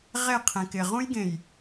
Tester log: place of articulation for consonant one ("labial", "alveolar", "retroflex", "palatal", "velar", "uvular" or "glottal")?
uvular